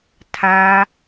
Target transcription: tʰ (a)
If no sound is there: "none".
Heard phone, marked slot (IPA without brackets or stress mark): a